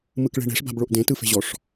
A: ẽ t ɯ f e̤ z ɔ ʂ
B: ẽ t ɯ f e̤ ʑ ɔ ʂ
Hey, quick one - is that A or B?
B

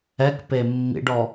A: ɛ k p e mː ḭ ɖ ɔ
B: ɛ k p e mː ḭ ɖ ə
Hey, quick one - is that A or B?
A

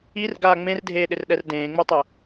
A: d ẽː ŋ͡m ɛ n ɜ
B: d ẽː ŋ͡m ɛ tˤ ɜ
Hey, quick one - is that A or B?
B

